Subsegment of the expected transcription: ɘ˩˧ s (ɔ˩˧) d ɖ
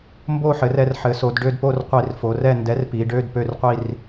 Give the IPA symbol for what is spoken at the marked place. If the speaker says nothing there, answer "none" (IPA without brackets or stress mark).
o˩˧